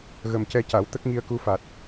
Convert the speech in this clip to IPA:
ɣə˨˩mcɛ˧ca˨˩˦w t̪ə˦˥k̚ŋi˧ə̯ku˧fa˨˩t̚

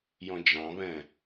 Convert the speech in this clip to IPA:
jɔ̃d͡ʒɑ̃βɛ̃

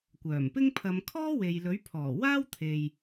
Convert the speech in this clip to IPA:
kʷœː˨˩mpɪ˥ŋ pʰɐ˨˧mkʰɔː˥ we˨jlɵ˨˥ɥpʰɔː˨˩ waː˥wt̪ʰe˨j

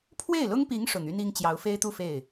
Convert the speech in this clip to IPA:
pʰwe˥˩ɪ̯lʊ˥ŋpi˧˥ŋ ʂʊ˨˩ŋy˥ni˥ŋt͡ɕjɑ˧˥ʊ̯ fe˥ɪ̯t̪u˥˧ fe˥˩ɪ̯

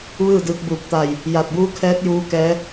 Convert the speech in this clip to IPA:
ʋɯː˥˨dɯː˧k̚ bu˧˩p̚t̪a˧˩j | ja˧˩t̚buː˧˥ kʰɛː˧˥t̚juː˧ kɛː˧˥

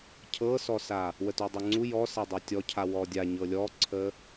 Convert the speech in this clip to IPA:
cʰɤsɔsa | wətudˤə˞ŋ͡ǀu jɔsɛdˤɤ tʲɔcʰa wɔdʲa ɲɤlʲɔǀʰə

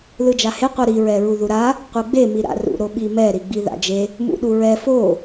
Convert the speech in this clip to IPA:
lɯd͡ʒahe qʷɯɾi ɹɛɹuðuɾa | qʷɯɡ͡be miɾa̰ rṵ ɾoɓimɛ ɾiɡ͡biða̰d͡ʒe | mṵɗuɹɛ fo

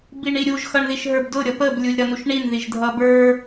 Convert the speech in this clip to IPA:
biɳiɾʲuʒ xʌɳðiʃɦə˞bdʊ ɾʲʌpəb lʲulʲɾʌnuʃɳin ðiʒdʱʌbə˞

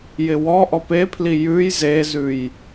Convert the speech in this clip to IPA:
jɪwɔʔɔ pepʰli jʉj zezʉj

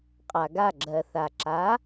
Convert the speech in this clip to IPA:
qʼa˩ɡa˥˩ ɡ͡ǁɜ˩θa˩ ǁa˩˥

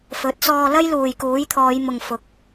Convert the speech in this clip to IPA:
fɵ˨˥t̚sɔː˧ lɐ˥jluː˨jkuː˨˥jt̪ʰɔː˨˧j mʊ˨ŋ fʊ˨˥k̚

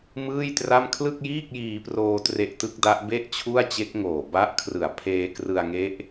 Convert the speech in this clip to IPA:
mɯː˥˩jtra˥˩m kʰlɯ˥˩k̚jiː˥˩k̚jiː˧proː˧ tre˦˥ʔtɯ˦˥k̚da˦˥ʔbe˥˩ʔ t͡ɕʰu˥˩a̯t͡ɕe˦˥k̚ŋoː˨˩ ba˦˥ʔ kʰrɯ˨˩a̯pʰeː˧krɯ˧a̯ŋe˦˥ʔ

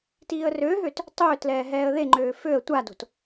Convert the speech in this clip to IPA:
tiːə̯røɦøt | tˤøːtlɛː ɦɛːə̯ðeŋ͡ǃøː føə̯ tʷado̤t

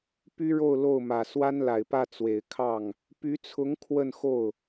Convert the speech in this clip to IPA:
py˥ɻo˥˧ʊ̯ lo˥˩ʊ̯mä˨˩ swa˥nla˨˩ɪ̯pä˥˩ t͡swe˨˩ɪ̯kʰɑ˥˩ŋ | py˧˥t͡sʰʊ˧˥ŋ kʰwə˥˧nxo˥˩ʊ̯

